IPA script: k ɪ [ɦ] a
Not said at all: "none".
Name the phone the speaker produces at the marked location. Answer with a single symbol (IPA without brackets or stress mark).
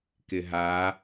ɦ